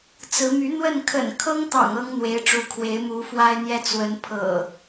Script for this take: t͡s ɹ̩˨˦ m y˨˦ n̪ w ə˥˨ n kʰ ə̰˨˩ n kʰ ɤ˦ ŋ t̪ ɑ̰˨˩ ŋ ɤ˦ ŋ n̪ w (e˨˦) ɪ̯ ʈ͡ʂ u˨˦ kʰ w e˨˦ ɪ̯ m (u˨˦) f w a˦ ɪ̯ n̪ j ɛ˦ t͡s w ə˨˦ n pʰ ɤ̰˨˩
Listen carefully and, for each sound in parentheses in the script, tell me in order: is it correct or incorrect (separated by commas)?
correct, correct